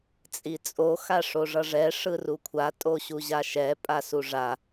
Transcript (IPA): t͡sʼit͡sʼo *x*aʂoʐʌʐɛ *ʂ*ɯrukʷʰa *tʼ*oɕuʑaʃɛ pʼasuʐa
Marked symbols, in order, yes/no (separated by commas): yes, yes, yes